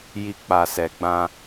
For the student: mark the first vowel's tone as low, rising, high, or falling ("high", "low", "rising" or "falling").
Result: low